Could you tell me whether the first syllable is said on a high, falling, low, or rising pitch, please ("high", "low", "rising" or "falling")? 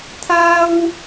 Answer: high